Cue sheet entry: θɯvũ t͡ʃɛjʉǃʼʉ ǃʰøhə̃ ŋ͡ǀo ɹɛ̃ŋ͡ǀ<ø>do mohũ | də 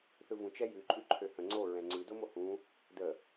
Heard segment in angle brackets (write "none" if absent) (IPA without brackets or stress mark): ʉ